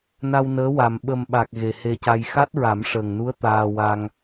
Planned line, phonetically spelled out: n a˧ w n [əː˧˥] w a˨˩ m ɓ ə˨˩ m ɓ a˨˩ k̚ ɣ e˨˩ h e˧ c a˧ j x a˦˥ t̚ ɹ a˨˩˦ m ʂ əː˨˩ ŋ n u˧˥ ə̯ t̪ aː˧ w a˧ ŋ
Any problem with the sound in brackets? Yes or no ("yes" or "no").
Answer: no